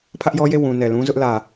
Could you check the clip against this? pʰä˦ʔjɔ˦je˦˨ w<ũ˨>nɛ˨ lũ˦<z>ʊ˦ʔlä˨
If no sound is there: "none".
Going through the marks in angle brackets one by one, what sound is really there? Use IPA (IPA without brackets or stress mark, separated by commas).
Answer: ũ˨, z